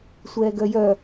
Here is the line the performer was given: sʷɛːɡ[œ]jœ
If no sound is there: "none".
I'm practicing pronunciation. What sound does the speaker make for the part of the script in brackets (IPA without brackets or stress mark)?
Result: œ